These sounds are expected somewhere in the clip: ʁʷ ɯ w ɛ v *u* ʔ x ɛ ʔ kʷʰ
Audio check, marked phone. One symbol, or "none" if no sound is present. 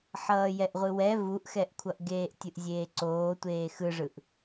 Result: u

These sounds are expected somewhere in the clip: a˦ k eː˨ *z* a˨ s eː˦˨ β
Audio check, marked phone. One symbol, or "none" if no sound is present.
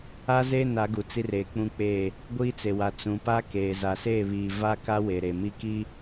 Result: z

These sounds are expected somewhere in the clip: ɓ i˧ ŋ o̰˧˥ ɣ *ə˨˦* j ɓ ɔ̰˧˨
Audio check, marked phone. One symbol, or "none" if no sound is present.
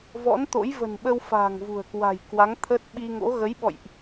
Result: ə˨˦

